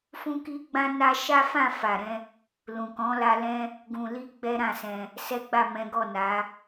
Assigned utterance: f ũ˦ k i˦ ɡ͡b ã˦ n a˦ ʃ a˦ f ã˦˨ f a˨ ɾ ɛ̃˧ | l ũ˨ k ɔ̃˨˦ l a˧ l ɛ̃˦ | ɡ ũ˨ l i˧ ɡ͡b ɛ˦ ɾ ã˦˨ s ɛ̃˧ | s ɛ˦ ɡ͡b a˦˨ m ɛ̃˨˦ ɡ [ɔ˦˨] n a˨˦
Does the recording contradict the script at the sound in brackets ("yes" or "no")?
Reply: no